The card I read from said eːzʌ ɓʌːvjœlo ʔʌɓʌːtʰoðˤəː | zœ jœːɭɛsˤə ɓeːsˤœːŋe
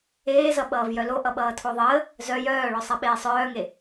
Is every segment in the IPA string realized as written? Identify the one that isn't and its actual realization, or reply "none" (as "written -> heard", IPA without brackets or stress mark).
ɛ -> œ